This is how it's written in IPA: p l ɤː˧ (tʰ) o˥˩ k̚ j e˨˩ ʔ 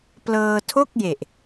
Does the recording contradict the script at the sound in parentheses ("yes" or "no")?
no